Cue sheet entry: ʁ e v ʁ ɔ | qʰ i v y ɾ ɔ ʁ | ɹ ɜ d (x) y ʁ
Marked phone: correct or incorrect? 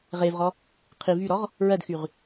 correct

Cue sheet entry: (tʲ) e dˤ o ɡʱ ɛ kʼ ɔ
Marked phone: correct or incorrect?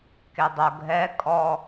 incorrect: k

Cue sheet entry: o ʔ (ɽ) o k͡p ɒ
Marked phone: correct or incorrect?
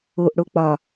correct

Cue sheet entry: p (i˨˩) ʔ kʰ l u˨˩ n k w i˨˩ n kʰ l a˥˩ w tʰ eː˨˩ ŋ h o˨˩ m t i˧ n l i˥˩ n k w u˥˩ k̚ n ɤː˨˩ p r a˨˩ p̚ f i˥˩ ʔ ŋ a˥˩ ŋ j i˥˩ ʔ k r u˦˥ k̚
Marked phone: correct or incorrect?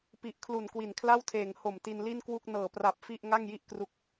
correct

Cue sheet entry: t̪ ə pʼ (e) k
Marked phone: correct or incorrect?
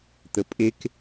correct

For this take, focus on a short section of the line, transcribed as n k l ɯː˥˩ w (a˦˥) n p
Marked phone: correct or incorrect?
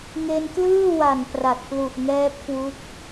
incorrect: a˨˩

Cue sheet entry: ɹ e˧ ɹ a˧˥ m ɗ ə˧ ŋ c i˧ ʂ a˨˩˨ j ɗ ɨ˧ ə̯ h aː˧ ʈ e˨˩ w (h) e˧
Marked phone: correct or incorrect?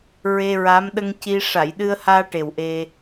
incorrect: ʔ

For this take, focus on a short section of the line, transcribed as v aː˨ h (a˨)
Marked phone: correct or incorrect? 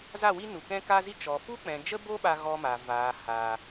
incorrect: aː˨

